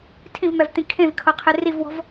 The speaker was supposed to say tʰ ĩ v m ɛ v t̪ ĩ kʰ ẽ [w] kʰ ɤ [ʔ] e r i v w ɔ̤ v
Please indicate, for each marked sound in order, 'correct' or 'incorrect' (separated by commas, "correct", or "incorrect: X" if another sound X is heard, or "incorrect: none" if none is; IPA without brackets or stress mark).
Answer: incorrect: v, incorrect: qʰ